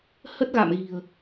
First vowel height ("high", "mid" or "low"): mid